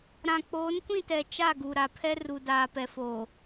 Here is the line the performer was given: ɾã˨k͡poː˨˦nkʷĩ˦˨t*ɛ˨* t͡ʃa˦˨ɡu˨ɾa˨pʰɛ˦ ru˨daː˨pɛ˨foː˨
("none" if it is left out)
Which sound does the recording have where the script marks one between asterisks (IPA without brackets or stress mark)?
ɛ˨